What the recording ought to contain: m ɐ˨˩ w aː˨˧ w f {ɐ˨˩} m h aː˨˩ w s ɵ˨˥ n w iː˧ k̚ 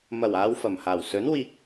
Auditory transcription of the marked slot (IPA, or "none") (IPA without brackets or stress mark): ɐ˨˩